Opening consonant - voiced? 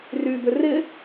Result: yes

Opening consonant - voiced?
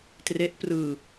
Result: no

